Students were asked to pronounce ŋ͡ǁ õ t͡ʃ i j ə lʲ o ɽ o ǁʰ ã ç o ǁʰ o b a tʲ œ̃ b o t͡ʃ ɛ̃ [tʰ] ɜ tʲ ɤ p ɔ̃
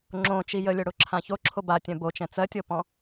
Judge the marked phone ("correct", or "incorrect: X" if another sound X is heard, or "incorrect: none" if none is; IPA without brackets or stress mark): incorrect: t͡s